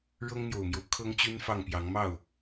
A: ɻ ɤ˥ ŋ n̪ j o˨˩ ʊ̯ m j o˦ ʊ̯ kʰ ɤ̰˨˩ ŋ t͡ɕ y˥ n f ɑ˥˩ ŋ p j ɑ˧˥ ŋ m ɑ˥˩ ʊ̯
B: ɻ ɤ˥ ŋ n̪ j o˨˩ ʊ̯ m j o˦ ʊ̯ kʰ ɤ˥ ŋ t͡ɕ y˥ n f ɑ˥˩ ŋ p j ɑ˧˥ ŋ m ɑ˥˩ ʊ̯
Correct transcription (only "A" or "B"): B